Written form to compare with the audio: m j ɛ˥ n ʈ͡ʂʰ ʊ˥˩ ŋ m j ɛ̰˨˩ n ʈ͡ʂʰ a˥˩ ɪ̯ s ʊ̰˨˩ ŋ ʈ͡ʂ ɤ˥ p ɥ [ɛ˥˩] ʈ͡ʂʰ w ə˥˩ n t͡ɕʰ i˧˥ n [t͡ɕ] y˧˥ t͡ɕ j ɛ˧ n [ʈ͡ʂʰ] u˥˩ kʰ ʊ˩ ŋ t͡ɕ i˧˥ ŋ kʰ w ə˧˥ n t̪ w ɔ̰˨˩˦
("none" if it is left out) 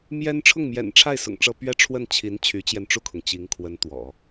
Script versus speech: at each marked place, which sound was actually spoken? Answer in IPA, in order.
ɛ˥, t͡ɕʰ, ʈ͡ʂ

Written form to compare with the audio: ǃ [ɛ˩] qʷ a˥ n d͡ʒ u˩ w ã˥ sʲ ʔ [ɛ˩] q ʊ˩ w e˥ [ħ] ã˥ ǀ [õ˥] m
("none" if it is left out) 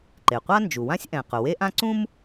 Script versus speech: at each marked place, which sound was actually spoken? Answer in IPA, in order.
e˩, ɛ̃˩, ʔ, ũ˥

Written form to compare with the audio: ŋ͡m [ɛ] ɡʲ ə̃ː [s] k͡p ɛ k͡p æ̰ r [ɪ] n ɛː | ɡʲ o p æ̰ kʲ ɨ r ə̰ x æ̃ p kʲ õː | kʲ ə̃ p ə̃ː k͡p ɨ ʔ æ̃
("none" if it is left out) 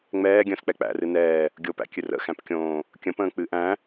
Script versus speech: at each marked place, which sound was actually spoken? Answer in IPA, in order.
ɛː, s, ɨ

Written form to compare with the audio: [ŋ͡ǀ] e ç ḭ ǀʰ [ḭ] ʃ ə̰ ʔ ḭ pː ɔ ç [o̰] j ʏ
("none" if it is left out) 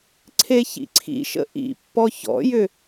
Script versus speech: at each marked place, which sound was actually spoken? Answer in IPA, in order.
ǀʰ, ḭ, ɔ̰

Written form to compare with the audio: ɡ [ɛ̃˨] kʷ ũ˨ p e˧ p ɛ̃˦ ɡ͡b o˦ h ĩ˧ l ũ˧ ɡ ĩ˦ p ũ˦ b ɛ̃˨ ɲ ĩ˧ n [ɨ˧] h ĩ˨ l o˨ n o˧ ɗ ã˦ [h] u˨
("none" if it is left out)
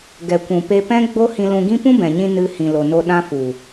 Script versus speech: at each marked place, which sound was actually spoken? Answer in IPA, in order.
ɛ˨, ɨ˧, f

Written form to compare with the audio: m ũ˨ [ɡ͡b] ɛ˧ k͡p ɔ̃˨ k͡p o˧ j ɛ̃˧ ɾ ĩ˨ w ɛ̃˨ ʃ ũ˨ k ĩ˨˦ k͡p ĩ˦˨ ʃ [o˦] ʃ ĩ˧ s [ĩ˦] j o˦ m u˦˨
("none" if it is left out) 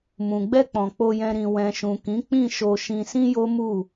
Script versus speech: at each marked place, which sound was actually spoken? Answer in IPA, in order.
ɡ͡b, o˧, ĩ˦

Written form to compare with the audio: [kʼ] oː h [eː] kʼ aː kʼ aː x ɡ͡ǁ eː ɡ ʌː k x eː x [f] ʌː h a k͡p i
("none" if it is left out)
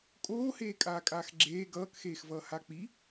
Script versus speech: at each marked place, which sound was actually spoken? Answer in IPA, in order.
kʼ, eː, v

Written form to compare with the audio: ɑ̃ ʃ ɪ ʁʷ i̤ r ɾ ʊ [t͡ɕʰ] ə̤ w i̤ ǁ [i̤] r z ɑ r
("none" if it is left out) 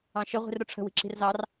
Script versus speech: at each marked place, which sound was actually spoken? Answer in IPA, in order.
ʈ͡ʂʰ, i̤

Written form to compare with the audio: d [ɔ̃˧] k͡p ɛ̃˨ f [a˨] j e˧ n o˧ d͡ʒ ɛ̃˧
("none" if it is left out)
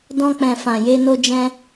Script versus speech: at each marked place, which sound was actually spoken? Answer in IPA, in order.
ɔ̃˧, ã˨

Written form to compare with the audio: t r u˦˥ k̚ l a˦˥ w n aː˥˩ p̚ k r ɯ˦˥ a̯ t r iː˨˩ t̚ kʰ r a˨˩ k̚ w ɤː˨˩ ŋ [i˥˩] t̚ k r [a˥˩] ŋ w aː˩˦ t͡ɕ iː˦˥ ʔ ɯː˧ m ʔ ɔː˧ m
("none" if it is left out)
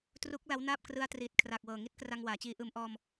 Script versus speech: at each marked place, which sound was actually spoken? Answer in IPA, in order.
i˥˩, a˧

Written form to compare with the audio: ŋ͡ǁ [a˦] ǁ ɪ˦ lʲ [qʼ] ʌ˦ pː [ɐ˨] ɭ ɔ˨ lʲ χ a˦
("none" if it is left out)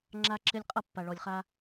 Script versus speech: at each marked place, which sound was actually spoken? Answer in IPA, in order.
a˦, qʼ, a˨

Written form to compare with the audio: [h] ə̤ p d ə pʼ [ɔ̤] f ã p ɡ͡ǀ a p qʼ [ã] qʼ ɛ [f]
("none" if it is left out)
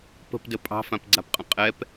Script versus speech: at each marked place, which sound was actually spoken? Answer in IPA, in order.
p, ɑ̤, ə̃, p

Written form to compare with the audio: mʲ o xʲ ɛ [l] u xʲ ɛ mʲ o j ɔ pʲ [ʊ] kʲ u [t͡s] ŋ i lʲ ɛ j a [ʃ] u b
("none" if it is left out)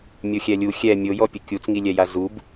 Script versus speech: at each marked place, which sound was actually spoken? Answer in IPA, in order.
lʲ, ʊ, t͡s, z

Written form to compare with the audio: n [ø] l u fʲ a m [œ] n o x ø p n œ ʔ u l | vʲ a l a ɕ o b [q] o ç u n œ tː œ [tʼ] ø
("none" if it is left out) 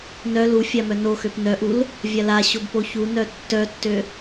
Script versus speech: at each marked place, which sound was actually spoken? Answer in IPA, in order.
œ, œ, p, tː

